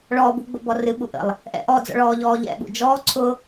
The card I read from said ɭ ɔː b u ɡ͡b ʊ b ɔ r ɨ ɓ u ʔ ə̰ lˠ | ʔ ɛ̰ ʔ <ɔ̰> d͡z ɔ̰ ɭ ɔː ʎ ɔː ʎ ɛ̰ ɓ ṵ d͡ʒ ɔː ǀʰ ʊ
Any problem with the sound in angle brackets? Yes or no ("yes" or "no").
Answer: yes